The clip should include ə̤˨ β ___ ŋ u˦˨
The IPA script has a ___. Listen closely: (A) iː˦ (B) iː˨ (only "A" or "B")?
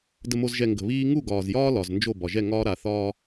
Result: A